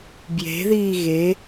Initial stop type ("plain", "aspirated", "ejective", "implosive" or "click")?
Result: plain